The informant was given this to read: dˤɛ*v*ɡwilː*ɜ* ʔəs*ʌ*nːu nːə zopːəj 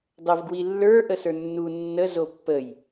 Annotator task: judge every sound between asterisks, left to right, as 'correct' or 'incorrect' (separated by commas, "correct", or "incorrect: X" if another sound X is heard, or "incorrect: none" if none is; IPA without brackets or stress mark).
correct, incorrect: ə˞, incorrect: ə˞